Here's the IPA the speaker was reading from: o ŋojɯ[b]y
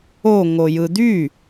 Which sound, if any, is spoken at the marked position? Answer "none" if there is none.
d̪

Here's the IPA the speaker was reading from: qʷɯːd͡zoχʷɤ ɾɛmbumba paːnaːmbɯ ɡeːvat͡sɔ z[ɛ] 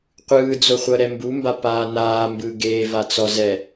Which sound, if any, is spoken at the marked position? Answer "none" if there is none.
ɛ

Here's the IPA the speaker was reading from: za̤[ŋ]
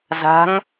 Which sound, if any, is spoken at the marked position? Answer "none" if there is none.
ŋ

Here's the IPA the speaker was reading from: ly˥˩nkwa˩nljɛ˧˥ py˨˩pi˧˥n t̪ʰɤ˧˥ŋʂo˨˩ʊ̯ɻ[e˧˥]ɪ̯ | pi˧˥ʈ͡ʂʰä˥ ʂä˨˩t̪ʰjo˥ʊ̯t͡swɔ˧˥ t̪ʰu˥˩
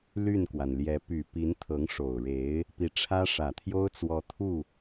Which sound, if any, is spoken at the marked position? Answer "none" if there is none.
e˧˥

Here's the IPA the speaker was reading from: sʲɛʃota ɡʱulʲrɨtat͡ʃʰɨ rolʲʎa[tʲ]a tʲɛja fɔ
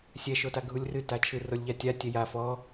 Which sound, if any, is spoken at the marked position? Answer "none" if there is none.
tʲ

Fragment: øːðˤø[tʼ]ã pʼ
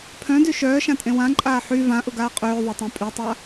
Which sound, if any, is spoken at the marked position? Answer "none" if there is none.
tˤ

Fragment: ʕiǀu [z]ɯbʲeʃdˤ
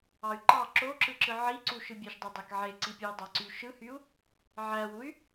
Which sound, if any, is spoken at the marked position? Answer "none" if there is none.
ʃ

